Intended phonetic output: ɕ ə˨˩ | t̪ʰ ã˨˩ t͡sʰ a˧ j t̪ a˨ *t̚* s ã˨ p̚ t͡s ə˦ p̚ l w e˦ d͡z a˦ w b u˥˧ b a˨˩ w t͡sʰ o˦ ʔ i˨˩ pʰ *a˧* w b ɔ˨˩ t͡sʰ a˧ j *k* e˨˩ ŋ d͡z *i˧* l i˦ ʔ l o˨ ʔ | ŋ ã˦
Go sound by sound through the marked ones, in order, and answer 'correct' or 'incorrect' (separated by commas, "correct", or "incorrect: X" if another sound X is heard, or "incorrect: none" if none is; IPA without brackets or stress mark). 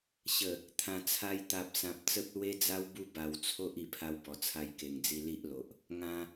incorrect: p̚, correct, correct, correct